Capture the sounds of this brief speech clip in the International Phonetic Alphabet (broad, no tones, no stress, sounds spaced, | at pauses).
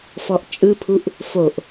f ɔ ʔ t͡ʃʼ ɯ pʰ u ʔ | f o ʔ